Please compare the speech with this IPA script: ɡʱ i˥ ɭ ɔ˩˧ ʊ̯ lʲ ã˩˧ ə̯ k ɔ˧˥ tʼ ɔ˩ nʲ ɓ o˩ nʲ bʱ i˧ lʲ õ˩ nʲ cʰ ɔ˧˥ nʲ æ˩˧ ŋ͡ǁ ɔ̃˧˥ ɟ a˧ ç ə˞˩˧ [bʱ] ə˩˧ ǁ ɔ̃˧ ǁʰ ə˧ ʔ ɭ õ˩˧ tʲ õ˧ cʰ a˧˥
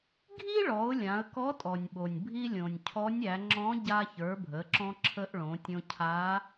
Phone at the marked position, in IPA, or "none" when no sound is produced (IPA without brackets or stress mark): bʱ